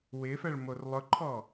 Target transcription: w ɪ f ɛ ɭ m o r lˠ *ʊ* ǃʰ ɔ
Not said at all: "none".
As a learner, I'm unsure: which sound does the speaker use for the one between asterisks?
ʊ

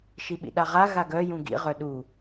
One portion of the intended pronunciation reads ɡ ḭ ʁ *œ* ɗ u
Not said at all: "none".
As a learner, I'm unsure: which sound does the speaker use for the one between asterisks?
œ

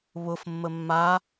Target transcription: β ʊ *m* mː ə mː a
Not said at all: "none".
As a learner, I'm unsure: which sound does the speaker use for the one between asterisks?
f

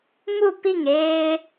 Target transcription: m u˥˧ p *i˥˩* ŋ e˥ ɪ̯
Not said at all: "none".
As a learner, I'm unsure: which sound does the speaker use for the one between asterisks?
i˥˩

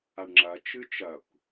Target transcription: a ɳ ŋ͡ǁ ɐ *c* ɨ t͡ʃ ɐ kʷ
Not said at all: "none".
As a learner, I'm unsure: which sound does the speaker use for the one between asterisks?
t͡ʃ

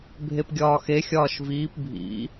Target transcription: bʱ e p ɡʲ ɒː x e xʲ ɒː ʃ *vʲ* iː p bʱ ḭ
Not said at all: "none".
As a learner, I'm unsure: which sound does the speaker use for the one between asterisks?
v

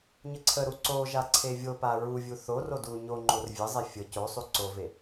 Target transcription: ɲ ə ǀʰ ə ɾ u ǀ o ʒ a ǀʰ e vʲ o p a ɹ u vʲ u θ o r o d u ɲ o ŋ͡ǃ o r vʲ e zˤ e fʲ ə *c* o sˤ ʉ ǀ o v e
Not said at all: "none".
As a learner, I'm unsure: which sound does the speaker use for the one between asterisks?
c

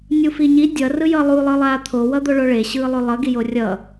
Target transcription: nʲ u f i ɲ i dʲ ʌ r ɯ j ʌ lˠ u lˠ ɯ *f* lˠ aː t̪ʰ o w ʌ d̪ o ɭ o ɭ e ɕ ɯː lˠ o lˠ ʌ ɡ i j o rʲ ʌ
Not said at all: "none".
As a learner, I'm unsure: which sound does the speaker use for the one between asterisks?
none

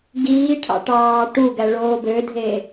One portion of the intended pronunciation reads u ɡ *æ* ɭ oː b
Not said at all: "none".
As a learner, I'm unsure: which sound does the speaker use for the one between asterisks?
æ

